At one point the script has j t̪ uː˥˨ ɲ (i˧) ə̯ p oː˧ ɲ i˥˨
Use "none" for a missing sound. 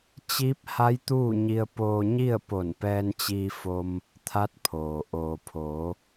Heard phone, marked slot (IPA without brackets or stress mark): i˧